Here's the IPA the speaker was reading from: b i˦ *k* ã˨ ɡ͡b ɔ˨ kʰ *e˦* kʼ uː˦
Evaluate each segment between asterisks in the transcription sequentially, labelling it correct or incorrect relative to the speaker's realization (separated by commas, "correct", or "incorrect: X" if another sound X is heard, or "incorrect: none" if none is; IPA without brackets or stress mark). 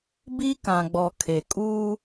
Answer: correct, incorrect: e˨